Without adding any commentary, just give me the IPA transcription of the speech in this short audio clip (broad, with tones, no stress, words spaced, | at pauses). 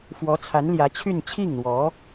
fwɔ˧˥ t͡sʰa˧˥nljä˧˥ t͡ɕʰy˥˧n t͡ɕʰi˥˩ŋn̪wɔ˧˥